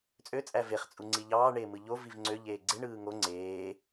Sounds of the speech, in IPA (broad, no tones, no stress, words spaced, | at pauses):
t͡sʼøt͡sʼæ veχ t͡sʼuŋ͡ǀiʎɑːɳeː mɯʎoviv ŋ͡ǀøʎeː ɡ͡ǀeɳɯː ŋo ŋ͡ǀeː